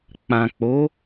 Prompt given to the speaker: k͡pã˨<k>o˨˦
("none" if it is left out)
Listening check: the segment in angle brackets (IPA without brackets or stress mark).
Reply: k͡p